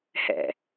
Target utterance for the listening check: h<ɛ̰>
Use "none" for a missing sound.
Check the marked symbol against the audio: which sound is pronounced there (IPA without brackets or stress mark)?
ɛ̰